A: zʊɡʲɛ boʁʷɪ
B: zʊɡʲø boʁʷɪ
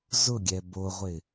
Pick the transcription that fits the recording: A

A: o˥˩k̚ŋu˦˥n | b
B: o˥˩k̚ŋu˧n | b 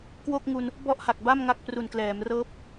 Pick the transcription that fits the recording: B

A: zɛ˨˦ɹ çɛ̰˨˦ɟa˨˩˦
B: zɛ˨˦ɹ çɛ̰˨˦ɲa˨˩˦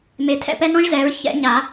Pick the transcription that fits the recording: B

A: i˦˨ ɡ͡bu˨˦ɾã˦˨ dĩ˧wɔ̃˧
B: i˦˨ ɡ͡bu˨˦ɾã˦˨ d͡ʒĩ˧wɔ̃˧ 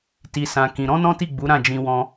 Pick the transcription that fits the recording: B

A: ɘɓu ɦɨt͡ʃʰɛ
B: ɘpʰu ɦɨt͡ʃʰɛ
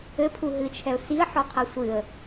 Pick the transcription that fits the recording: B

